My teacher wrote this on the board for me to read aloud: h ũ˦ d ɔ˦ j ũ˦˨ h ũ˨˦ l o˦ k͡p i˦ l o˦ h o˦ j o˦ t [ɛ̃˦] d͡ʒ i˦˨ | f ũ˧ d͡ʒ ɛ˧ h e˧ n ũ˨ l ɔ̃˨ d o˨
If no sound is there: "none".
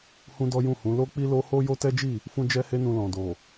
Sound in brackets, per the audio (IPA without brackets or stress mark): ɛ˦